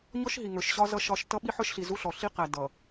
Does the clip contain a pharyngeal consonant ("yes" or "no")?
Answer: yes